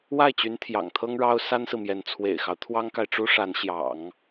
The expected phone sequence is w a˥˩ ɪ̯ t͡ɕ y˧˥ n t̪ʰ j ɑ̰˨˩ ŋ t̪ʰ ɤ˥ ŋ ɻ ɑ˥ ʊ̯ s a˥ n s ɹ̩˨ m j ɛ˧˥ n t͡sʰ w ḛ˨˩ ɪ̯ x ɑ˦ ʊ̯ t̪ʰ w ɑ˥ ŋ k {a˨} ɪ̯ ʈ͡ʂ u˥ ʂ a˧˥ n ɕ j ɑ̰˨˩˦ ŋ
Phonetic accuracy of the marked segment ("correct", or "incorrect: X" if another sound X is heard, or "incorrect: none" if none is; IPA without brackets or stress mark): correct